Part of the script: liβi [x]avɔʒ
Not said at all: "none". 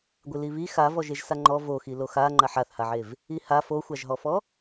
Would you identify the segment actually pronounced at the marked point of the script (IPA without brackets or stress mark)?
x